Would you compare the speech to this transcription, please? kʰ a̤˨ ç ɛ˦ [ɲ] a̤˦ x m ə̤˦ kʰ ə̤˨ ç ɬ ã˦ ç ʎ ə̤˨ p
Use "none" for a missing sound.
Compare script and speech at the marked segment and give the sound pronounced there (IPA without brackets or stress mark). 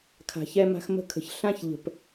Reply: m